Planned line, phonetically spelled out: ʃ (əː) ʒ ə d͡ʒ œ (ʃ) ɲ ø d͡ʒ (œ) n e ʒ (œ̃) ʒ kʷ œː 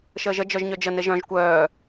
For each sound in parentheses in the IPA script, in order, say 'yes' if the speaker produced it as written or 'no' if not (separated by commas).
yes, no, no, yes